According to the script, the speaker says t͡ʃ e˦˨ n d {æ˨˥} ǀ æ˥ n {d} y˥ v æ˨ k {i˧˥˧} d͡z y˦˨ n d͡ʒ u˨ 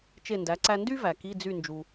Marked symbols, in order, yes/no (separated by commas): yes, yes, yes